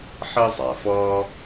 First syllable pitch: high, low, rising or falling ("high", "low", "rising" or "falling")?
high